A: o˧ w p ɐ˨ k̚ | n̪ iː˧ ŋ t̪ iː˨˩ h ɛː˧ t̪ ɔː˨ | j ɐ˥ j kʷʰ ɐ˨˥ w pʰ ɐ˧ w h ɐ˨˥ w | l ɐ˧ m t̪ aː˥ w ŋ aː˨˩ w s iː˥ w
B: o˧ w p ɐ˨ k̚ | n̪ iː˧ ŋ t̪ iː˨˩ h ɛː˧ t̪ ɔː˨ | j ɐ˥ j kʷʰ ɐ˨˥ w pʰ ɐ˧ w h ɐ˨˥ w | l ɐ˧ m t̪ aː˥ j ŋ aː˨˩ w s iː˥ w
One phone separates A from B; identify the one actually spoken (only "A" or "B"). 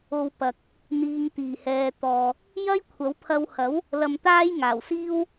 B